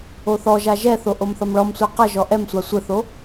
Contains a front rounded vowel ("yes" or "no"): no